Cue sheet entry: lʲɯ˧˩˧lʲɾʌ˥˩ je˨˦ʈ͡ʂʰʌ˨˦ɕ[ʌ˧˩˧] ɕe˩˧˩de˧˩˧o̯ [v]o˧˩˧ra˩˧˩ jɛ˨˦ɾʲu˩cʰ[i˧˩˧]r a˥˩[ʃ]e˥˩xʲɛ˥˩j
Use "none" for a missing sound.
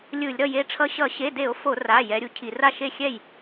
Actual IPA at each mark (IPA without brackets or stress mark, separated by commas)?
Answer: ʌ˧˩˧, f, i˧˩˧, ʃ